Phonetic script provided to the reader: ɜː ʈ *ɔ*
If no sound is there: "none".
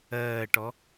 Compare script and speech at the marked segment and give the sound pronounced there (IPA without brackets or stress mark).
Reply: ɔ